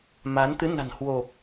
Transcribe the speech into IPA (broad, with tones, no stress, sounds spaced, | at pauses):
m a˨˦ n t̪ ɨ˨˦ n a̤˨˩ n h w o˨˩ p̚